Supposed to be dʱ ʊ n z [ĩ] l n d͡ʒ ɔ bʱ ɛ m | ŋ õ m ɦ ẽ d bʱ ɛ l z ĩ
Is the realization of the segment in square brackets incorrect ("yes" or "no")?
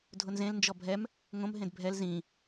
yes